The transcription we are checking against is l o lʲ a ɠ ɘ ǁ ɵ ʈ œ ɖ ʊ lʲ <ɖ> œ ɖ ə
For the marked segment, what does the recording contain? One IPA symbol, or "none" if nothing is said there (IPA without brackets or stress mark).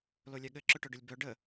b